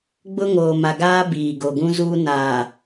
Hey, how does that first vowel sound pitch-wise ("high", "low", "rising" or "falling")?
high